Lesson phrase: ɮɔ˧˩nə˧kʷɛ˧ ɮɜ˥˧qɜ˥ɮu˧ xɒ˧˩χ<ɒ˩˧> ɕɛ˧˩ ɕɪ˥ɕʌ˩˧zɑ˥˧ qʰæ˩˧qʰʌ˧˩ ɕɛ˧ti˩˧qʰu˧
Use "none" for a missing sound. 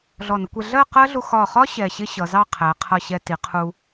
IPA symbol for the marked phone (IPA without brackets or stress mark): ɒ˥